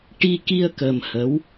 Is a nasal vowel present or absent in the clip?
absent